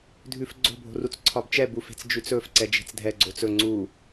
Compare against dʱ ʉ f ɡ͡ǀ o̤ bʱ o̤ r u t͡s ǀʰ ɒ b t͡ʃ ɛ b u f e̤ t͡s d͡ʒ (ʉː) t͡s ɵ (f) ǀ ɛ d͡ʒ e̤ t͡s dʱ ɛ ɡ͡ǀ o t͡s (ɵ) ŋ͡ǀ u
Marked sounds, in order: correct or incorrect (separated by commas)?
incorrect, correct, correct